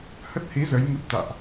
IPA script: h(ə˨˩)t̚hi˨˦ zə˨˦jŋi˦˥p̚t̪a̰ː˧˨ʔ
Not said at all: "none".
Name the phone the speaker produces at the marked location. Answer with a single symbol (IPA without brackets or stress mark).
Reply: ə˦˥